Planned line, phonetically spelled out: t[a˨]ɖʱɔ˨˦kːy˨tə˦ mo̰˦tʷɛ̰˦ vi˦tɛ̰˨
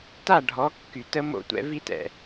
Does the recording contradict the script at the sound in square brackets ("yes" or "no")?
yes